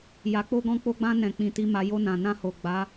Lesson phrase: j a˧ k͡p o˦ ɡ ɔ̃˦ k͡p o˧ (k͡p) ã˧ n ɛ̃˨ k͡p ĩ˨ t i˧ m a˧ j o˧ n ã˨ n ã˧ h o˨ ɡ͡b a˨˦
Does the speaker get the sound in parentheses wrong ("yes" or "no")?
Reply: yes